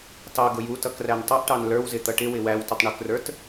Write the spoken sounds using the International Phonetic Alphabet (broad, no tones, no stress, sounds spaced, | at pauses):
t ɑ ɡ ʊ j u t ʌ k r æ n tˤ ʌ ʔ ʈ ɑ n l ə˞ w z ɪ t̪ ʌ ʈ ɪ w ɪ w æ w t ɪ tˤ ɳ ʊ k r ə˞ t